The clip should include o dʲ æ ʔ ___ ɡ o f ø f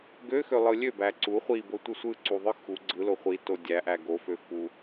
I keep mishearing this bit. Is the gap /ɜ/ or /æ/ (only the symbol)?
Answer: æ